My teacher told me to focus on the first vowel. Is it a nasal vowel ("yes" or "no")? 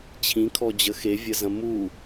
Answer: yes